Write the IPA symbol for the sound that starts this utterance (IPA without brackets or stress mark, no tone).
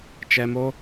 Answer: t͡ʃ